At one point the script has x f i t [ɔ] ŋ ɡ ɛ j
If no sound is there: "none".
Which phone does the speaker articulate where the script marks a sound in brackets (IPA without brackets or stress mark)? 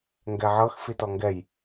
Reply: ɔ